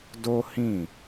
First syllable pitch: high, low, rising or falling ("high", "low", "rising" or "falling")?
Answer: high